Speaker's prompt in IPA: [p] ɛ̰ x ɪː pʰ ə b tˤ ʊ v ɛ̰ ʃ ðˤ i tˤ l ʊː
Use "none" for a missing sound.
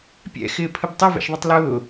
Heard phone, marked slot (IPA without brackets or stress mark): pʲ